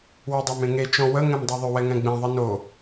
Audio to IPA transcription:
w ɵ dˤ a m ẽ ŋ e t͡ʃ ɔ̃ w ə ŋ ɛ̃ m dˤ ɛ ðˤ ʏ w ɛ ŋ ɛ̃ ɡ͡b ẽ ðˤ ɨ n o

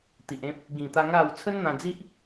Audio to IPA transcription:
t̪ i˨ ʔ ẽ˦ p̚ | ɡ ĩ˨˩ t̪ a˧ ŋ a˥˧ w t͡sʰ ə˦ n n̪ ã˧ d͡z i˦ ʔ

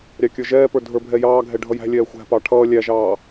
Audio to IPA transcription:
ɾʲ ɑ kʲ ə˞ ʒ ɛː p ə˞ dʱ ə˞ bʱ ɛ j ɑː ɡʱ ɛ ɖʱ ʌ j æ̤ lʲ ɛː xʷ æ̤ p ɑ ʈʰ ʌː lʲ æ ʒ ɑː

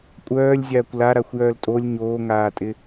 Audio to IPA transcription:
kʷʼ œː lʲ zʲ aː kʷ l a ɾ a xʷ j œː l tʼ o lʲ ɲ oː ŋ aː tʼ ɪ

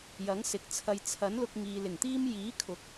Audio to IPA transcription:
j ɐ˨˥ ŋ s ɪ˨ k̚ t͡sʰ ɐ˨ j t͡sʰ ɐ˨˥ n l ʊ˧ k̚ ŋ iː˨ l ɪ˨˩ ŋ t̪ iː˥ m j iː˨˥ kʰ ʊ˨˥ k̚

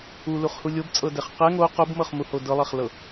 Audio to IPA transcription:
u l u χ h u lʲ o b t͡sʼ ɤ d ɛ χ q ɛ ŋ o q o b m ɤ χ m u h o d ɤ lˠ ɛ χ l ɤ

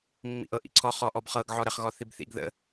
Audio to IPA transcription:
mː ḭ ʔ ɤ ʔ ḭ ǀʰ ɔ χ ɔ ʔ ɔ b χ ɤ ɡ ʕ ɔ ɾ ə χ ɣ ɔ θ i b θ ḭ ɡ ð ə̰

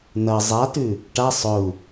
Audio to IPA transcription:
n ɐ zˤ a t ʉ | ʈ a sˤ ɵ u̯

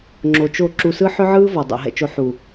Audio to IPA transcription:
ŋ͡ǁ o˨ t͡ʃ o˦˨ ǁ u˨ s ɯ˦ ħ ʏ˦ ʕ ɯː˦ v ɔ˨ dˤ ɛ̰˨ ɦ ɛ̰˨ t͡ʃ o˨ ħ u˨

